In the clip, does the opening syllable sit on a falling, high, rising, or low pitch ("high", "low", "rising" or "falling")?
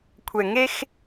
low